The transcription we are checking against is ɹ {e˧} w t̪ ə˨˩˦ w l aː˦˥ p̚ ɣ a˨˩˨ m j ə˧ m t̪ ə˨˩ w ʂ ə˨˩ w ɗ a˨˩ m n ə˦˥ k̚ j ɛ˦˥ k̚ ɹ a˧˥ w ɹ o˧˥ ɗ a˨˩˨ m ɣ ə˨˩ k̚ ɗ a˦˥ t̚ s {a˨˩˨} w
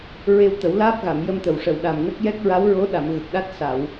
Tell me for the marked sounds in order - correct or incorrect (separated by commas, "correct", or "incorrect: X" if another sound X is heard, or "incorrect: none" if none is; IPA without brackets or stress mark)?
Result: correct, correct